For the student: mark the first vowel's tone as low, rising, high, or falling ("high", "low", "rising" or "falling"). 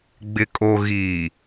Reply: low